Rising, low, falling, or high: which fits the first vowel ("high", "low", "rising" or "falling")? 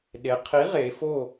rising